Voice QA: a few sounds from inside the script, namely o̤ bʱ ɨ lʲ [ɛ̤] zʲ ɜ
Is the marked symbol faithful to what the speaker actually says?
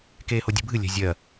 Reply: yes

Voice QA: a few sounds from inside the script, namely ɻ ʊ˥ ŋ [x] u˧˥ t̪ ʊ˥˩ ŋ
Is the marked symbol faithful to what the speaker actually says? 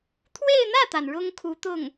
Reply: no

